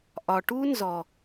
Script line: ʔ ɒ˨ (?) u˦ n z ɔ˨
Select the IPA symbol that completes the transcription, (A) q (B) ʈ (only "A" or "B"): B